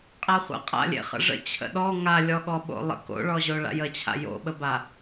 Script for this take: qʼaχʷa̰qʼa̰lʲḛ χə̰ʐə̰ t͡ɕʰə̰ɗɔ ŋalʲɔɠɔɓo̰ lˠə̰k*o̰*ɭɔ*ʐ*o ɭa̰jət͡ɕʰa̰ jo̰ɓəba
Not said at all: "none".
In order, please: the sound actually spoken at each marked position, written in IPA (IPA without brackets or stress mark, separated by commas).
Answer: o̰, ʑ